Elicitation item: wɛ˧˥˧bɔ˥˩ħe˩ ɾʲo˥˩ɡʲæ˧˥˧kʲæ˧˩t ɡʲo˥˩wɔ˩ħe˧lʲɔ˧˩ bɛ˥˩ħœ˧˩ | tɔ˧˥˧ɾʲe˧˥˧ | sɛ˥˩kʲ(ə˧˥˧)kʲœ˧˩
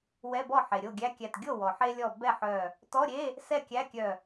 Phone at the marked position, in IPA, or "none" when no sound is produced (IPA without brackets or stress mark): æ˧˥˧